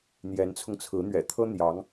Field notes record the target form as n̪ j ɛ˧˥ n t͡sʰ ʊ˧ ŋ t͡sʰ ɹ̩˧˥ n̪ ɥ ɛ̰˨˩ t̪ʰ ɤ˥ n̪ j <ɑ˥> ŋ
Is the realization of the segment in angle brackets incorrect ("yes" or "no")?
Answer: yes